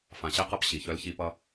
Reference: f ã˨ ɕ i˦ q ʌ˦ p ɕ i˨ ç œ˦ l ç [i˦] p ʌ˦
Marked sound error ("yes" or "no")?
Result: no